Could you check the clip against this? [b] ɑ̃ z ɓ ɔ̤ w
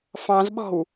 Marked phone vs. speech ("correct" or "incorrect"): incorrect